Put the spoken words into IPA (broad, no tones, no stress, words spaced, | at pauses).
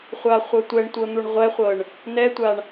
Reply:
χʷaχʷɤtʷɛɳtʷɤ n̪uɳʁʷɛχʷɤɳ | nɛtʷaɳ